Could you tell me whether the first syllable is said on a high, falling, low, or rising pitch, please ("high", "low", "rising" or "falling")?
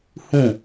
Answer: falling